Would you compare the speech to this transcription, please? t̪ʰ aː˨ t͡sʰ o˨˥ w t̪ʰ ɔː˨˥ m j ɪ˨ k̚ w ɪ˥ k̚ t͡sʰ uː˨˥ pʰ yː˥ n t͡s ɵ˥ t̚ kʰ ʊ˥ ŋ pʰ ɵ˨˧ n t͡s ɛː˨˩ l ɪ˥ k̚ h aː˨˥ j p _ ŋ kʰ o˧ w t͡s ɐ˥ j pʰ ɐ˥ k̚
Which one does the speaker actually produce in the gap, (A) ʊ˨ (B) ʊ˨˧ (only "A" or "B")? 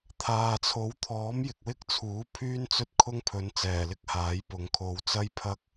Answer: A